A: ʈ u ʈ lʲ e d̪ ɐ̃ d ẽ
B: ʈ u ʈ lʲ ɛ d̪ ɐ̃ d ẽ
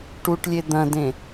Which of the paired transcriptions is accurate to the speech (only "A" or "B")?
A